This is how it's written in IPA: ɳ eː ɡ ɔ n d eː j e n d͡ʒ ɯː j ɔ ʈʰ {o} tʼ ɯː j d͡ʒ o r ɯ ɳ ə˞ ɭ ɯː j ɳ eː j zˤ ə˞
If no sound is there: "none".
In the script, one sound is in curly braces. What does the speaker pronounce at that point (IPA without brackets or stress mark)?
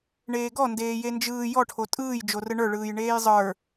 o